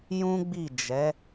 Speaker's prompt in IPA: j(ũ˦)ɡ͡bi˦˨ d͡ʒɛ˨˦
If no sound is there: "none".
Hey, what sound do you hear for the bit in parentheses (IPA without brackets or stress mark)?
ũ˦